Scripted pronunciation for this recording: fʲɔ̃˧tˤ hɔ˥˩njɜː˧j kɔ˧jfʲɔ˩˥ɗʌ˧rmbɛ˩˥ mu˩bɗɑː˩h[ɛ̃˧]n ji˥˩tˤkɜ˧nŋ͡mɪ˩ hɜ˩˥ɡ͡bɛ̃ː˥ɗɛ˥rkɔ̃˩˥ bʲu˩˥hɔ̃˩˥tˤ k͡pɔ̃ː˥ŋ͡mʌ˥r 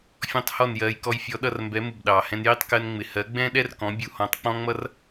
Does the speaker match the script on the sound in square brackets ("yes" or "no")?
yes